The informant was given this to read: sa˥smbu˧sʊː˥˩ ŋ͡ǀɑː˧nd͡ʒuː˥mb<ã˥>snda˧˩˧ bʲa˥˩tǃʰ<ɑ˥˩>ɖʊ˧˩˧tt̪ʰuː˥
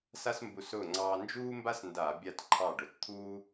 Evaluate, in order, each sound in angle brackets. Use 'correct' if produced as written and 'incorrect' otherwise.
incorrect: a˥, correct

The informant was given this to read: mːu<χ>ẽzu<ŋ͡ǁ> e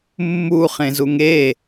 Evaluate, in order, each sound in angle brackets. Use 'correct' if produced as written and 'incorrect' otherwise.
correct, incorrect: ŋ

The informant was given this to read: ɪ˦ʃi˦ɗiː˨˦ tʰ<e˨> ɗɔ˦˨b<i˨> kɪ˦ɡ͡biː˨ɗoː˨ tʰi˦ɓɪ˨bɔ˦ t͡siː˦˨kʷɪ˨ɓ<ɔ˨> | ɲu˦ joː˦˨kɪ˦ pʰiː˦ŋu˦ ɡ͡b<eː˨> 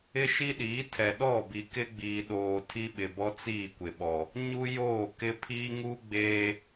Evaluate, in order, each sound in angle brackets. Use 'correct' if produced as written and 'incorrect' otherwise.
incorrect: ɛ˨, correct, correct, incorrect: eː˦

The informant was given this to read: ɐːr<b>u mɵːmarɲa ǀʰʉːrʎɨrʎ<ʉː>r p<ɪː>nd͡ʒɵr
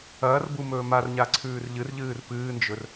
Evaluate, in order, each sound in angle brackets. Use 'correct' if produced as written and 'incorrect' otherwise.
correct, incorrect: ɨː, incorrect: ɨː

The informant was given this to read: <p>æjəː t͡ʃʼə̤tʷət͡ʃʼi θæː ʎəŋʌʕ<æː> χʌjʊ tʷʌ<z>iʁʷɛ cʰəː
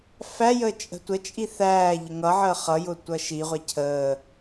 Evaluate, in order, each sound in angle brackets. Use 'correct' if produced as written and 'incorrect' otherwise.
incorrect: f, incorrect: əː, incorrect: ʃ

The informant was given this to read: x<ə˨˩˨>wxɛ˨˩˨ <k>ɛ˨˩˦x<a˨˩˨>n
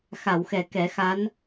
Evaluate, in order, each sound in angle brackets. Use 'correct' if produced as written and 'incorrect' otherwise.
incorrect: a˨˩˨, correct, incorrect: a˧˥

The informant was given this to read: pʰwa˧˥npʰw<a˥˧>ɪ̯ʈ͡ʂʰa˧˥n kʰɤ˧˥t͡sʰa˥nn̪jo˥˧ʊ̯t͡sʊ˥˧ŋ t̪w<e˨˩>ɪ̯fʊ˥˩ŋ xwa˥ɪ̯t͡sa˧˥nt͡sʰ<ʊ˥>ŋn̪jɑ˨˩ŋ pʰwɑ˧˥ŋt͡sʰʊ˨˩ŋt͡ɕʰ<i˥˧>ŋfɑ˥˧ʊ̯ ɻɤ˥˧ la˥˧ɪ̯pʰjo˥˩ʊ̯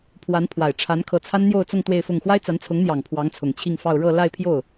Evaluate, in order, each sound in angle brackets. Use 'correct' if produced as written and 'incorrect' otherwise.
incorrect: a˨˩, incorrect: e˥˧, incorrect: ʊ˧˥, correct

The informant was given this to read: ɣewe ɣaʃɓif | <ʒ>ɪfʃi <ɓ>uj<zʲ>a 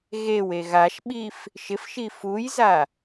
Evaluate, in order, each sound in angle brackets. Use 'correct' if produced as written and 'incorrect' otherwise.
incorrect: ʃ, incorrect: f, incorrect: z

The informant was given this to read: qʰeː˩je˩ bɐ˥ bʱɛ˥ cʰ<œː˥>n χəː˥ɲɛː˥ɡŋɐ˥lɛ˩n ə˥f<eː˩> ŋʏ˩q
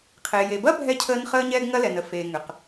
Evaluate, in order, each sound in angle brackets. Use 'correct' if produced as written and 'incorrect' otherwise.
incorrect: əː˥, correct

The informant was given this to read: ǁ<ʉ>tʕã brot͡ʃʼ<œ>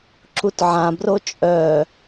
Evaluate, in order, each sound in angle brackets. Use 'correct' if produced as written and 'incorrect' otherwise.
incorrect: u, correct

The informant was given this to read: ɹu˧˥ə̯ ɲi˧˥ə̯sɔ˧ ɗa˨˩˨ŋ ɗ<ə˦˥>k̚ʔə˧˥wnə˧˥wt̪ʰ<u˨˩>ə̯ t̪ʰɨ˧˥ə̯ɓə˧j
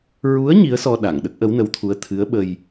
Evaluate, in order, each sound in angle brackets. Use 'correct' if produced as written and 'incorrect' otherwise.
correct, incorrect: u˧˥

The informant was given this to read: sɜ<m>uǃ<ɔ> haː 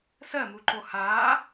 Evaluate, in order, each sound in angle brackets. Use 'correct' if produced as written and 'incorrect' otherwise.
correct, incorrect: o

